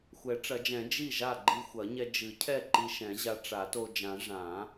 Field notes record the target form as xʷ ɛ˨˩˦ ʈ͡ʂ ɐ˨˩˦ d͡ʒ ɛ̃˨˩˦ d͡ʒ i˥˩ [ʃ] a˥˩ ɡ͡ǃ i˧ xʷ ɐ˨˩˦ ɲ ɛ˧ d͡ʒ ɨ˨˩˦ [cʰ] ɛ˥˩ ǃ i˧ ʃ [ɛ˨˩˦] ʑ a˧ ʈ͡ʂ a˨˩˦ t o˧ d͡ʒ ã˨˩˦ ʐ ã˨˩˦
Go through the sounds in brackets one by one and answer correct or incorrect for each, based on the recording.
incorrect: ʒ, correct, incorrect: ɛ̃˨˩˦

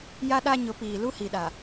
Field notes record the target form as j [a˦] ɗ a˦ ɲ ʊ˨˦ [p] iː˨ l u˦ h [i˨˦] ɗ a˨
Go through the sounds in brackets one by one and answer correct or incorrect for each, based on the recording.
correct, correct, incorrect: i˨

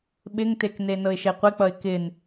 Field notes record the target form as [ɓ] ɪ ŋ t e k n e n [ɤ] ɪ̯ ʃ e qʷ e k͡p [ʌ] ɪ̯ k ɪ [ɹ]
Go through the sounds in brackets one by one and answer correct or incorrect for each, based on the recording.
correct, correct, correct, incorrect: n

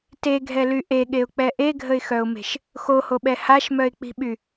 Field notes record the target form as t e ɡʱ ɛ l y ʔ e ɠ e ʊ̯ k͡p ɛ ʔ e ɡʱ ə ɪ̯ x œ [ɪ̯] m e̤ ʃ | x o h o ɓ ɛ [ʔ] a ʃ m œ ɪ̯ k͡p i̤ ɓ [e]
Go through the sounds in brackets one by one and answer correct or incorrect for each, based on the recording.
incorrect: ʊ̯, incorrect: h, incorrect: y

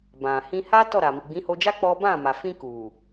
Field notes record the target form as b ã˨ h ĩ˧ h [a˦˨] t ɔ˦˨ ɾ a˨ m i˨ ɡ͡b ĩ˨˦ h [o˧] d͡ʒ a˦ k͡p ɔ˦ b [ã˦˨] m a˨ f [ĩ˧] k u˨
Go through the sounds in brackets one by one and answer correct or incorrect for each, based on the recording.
incorrect: a˦, correct, correct, correct

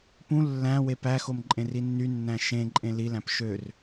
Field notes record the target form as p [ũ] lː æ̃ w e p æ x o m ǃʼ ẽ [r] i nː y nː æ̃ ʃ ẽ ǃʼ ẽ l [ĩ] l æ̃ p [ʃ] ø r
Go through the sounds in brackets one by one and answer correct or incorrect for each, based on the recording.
correct, correct, incorrect: i, correct

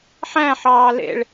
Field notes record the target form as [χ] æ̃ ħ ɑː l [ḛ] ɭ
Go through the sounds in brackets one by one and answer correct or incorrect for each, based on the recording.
incorrect: ħ, correct

